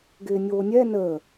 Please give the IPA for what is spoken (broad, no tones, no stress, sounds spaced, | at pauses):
ɡ ɪː nʲ oː nʲ ɛ n əː